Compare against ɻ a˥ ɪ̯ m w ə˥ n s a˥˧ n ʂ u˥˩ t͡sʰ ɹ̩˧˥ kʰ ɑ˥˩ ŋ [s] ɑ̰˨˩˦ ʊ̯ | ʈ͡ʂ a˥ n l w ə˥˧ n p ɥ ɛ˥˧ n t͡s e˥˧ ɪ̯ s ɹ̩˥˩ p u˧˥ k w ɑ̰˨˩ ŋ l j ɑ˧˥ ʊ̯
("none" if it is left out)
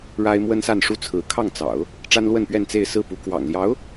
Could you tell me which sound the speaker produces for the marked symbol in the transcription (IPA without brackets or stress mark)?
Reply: t͡s